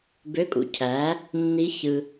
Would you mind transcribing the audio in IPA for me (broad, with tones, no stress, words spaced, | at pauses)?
bø˧˥˧kʼṵ˧˥˧cʰæ˩˥ | nːi˧˥ çɯ˨